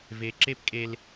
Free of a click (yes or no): no